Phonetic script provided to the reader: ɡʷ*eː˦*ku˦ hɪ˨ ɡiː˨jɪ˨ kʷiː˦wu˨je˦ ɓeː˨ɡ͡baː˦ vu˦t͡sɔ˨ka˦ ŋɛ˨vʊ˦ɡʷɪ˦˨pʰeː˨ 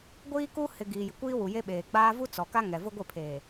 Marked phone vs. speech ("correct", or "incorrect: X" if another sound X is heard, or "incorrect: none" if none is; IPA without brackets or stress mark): incorrect: iː˦